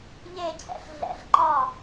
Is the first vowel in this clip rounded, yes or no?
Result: no